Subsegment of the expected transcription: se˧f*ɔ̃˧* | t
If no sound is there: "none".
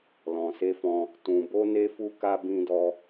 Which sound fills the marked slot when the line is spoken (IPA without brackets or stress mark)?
ɔ̃˧